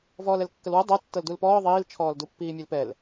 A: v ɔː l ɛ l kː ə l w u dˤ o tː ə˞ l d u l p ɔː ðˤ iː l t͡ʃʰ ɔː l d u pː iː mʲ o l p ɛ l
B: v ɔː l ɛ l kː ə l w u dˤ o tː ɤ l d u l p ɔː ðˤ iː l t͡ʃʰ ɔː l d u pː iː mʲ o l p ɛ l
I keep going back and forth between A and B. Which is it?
B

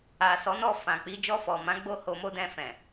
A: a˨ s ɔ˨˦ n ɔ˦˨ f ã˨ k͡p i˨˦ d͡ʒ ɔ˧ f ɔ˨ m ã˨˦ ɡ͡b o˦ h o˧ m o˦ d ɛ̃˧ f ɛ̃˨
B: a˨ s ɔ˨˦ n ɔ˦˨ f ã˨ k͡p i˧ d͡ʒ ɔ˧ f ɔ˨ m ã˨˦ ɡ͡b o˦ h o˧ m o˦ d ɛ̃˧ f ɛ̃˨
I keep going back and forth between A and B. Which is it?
A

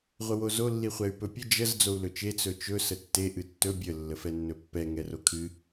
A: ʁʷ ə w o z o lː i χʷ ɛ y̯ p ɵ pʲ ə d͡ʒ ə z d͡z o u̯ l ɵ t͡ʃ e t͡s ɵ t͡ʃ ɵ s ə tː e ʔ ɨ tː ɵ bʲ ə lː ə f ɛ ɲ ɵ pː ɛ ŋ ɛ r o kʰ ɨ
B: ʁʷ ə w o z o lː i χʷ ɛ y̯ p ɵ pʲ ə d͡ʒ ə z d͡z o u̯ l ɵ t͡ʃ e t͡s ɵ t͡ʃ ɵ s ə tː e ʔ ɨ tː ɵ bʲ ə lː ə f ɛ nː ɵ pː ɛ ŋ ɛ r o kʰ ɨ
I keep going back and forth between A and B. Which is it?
B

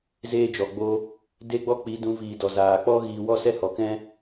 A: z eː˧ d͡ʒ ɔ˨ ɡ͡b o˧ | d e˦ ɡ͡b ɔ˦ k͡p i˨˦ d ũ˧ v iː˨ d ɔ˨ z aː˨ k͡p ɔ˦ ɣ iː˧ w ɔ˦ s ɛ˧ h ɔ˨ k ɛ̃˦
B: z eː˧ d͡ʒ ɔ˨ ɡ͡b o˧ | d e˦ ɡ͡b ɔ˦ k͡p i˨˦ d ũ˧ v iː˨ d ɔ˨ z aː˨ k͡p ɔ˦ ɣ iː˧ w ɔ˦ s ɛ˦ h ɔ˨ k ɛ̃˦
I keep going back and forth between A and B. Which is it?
B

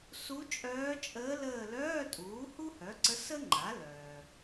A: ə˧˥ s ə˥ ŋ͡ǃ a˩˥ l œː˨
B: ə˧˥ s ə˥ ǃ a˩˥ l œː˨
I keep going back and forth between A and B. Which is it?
A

